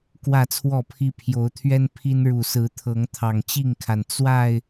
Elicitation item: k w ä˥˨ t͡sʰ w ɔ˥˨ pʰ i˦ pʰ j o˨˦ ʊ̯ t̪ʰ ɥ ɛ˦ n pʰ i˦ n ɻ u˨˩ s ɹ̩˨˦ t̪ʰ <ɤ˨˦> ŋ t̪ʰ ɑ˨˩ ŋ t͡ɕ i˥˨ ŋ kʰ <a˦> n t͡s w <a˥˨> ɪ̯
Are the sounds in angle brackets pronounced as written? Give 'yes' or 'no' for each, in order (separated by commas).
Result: yes, no, yes